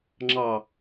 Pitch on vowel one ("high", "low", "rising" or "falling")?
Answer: low